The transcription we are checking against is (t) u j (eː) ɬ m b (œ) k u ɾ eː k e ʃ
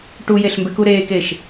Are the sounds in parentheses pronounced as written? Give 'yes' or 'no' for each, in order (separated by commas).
no, no, no